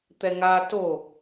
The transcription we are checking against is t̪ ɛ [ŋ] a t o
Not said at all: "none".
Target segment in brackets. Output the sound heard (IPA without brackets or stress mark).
ŋ